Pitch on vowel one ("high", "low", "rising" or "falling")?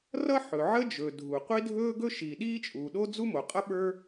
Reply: high